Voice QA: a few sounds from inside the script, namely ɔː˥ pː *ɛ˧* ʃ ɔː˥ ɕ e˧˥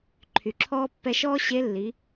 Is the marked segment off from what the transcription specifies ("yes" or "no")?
no